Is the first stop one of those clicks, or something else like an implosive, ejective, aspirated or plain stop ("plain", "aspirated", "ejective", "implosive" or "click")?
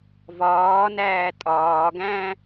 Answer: ejective